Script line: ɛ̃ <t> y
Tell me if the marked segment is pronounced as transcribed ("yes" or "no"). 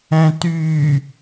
yes